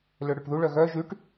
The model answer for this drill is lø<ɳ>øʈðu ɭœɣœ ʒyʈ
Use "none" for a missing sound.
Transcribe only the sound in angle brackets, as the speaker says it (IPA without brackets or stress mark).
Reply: ɽ